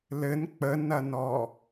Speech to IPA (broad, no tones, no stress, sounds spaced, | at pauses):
l ɘ n k͡p ə n ɐ n ɔ